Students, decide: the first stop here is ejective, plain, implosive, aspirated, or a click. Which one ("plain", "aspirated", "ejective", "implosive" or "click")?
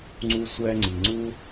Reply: click